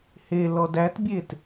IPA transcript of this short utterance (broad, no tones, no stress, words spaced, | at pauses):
helɔd ætbʲet